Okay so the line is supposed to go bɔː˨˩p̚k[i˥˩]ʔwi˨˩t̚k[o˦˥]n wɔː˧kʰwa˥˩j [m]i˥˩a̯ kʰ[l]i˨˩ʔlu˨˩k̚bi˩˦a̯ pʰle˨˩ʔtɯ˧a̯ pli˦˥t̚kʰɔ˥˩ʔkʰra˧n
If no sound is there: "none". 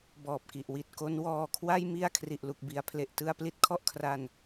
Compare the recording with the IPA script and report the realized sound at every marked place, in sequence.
i˨˩, o˦˥, m, r

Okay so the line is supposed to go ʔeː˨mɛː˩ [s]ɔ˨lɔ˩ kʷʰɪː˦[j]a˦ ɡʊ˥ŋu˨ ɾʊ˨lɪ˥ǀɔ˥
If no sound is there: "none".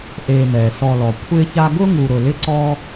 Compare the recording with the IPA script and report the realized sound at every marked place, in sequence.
s, ç

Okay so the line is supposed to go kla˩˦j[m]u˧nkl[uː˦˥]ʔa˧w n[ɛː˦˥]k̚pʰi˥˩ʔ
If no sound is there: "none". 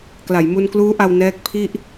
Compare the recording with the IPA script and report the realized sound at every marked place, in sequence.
m, uː˦˥, ɛː˦˥

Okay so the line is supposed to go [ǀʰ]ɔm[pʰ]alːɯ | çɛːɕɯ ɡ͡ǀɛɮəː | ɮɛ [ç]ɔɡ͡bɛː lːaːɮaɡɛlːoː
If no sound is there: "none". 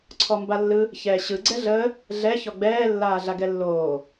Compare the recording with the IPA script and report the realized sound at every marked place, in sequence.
ǀʰ, b, ç

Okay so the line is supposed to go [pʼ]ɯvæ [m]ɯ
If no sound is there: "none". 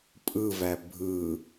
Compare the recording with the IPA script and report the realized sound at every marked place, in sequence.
pʼ, bʱ

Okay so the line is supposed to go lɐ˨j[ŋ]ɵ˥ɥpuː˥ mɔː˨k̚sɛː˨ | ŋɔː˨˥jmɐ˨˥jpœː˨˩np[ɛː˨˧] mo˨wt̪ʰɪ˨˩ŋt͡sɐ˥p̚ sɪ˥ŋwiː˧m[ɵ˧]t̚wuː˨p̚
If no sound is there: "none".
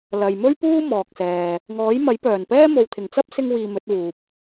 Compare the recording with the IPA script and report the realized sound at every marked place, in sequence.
m, ɛː˥, ɵ˨˥

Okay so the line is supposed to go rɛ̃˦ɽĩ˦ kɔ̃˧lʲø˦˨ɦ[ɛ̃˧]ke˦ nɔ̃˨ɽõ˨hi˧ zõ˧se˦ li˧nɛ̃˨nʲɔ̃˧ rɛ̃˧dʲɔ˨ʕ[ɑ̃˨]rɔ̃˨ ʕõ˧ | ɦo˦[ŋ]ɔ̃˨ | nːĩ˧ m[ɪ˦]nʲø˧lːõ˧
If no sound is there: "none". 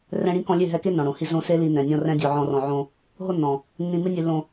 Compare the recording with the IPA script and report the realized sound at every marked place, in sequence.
ɛ˧, ɔ̃˨, nː, ɪ˦

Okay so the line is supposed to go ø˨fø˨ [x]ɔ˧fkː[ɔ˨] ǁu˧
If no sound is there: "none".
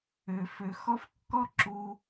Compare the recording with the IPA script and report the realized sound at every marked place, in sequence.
x, ɔ˦

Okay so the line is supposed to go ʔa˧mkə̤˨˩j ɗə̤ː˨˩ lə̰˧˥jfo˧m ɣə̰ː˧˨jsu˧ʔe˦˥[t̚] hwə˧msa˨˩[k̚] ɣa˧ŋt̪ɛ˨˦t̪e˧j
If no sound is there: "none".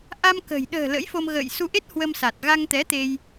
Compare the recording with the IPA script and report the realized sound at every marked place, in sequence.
t̚, t̚

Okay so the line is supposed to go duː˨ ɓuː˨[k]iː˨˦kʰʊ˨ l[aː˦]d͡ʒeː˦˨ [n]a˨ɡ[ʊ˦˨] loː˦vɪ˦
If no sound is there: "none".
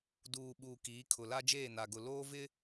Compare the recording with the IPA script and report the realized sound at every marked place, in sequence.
k, a˦, n, ʊ˨

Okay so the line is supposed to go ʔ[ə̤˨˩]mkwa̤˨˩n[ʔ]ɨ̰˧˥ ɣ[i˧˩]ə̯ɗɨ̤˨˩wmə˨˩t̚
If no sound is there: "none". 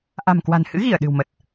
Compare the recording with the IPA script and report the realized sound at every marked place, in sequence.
a̤˨˩, h, i˧˩

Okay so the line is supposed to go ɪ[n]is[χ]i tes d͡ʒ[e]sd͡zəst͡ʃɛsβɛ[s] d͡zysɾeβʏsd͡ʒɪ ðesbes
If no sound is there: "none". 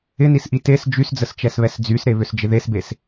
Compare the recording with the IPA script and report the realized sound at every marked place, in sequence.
n, ʔ, y, s

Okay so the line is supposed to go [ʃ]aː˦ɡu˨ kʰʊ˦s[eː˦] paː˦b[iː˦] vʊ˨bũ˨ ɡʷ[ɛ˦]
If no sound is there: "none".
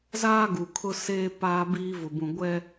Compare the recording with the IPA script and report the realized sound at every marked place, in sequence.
z, eː˦, iː˦, ɛ˦

